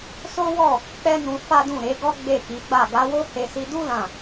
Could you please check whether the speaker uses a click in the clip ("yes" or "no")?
no